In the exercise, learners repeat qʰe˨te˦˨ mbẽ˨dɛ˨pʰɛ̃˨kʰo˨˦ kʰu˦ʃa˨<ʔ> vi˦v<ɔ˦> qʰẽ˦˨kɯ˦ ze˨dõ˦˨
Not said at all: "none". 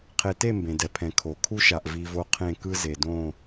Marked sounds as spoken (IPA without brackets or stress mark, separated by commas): ʔ, o˦